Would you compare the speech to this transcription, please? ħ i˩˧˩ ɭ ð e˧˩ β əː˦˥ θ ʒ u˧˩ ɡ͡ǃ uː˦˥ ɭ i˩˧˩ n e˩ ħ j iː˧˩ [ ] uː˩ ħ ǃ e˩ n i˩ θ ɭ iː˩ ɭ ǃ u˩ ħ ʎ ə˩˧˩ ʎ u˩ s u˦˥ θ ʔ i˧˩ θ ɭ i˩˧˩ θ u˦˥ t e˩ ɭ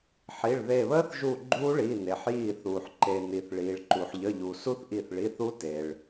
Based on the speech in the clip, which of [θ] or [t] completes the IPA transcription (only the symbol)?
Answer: θ